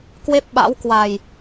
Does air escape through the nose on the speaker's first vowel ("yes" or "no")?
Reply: no